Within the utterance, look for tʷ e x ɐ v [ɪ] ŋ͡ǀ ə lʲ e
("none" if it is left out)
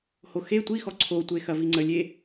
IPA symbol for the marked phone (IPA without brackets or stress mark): i